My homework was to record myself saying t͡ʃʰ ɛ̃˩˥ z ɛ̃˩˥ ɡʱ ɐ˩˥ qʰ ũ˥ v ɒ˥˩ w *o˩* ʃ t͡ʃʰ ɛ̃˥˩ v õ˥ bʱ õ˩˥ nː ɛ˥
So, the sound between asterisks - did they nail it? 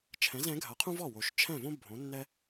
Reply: yes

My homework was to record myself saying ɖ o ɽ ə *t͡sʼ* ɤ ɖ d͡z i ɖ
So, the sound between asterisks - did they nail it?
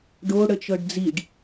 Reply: no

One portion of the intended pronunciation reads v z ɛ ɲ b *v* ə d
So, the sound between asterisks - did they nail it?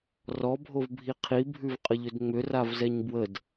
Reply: no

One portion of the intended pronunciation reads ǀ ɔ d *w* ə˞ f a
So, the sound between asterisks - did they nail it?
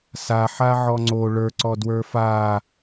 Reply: yes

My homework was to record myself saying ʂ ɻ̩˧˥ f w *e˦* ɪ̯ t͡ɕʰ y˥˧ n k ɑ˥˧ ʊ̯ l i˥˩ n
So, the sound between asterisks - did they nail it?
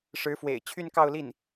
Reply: no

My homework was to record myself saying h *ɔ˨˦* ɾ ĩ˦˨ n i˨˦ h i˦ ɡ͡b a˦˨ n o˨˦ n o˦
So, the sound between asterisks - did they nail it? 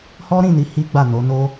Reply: no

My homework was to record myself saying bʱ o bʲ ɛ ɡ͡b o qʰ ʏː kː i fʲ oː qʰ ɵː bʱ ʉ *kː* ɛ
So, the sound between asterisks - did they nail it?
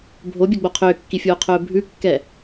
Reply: yes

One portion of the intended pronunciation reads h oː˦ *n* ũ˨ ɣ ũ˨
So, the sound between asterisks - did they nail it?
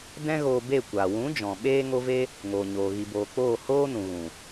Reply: yes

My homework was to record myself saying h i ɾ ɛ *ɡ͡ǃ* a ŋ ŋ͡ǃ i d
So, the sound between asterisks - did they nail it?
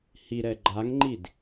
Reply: yes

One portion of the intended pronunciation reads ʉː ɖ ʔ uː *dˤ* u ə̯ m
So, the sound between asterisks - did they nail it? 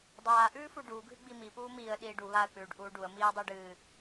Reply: no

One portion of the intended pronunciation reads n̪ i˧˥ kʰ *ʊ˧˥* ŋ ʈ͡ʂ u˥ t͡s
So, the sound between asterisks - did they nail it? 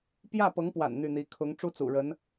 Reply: yes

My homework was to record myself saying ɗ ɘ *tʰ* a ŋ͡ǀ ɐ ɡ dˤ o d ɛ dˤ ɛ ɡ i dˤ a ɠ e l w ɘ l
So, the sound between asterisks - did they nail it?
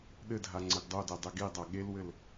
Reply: no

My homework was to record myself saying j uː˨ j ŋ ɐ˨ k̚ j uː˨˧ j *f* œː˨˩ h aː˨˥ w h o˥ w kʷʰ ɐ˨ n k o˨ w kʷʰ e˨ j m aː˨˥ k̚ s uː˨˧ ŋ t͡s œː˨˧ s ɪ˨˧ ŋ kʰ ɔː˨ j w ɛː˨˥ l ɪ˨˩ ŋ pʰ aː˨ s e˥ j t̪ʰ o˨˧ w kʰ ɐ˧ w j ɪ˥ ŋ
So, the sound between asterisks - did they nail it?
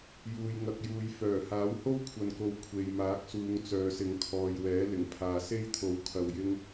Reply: yes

